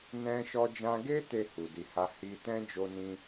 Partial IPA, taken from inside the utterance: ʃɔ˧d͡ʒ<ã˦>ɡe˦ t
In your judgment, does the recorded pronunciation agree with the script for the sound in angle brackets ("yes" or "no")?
no